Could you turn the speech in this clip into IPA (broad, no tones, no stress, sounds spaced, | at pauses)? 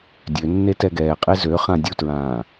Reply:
dʲ ø nː e t ɛ ɡ ɛː qʼ e z ø χ ã dʲ u t ɹ ãː